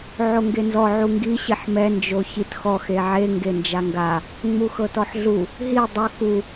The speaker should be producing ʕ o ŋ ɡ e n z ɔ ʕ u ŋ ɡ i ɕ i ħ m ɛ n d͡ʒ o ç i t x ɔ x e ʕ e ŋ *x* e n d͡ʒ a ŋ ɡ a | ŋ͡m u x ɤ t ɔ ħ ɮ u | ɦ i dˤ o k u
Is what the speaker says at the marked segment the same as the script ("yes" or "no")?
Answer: no